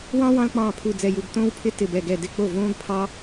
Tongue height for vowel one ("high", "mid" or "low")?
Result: low